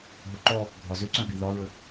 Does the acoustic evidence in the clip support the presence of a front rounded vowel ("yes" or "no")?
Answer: yes